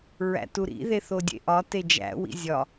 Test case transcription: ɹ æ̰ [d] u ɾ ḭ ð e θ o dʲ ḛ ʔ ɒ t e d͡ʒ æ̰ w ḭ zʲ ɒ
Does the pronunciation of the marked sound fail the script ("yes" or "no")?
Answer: yes